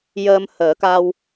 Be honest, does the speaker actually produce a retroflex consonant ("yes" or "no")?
no